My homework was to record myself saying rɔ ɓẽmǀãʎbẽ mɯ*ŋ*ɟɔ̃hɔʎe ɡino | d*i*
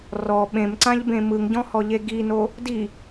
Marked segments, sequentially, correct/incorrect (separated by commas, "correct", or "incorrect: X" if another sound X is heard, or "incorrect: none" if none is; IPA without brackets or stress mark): correct, correct